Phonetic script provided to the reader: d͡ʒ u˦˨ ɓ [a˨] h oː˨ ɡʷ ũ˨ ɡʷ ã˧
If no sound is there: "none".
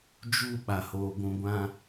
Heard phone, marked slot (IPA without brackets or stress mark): a˨